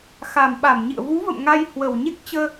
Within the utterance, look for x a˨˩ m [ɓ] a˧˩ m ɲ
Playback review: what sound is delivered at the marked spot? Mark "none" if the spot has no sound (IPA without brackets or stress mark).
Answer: ɓ